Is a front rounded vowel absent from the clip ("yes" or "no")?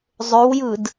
no